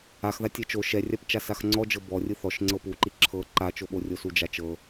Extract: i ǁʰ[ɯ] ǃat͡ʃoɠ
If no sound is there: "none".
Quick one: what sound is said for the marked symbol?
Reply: ɤ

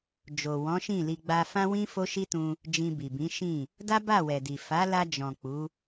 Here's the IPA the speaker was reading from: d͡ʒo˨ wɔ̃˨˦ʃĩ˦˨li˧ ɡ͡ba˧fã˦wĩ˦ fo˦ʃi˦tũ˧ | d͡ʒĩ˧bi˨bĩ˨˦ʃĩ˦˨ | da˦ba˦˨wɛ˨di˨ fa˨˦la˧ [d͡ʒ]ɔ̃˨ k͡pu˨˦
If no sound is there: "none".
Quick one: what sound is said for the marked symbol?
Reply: d͡ʒ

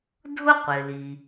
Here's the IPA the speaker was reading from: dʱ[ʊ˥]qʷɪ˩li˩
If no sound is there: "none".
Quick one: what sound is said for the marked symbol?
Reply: ʊ˥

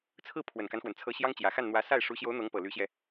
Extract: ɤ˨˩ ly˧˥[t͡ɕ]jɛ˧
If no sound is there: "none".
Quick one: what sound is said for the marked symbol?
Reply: ɕ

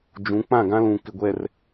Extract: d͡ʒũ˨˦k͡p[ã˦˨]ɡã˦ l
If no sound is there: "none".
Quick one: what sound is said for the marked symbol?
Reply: ã˦˨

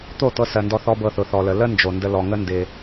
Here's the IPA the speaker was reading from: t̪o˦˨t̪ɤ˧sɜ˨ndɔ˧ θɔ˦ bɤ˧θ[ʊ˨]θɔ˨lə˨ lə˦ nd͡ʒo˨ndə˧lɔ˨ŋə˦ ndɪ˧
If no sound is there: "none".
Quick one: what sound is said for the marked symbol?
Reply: ʊ˨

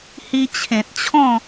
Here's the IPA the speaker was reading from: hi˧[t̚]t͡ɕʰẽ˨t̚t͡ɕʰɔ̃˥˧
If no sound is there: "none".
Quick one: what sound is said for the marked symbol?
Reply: none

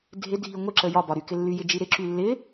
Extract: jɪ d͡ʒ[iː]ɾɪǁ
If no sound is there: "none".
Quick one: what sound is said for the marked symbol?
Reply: i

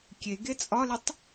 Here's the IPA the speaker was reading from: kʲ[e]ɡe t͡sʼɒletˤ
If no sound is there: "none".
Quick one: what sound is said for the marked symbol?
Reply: e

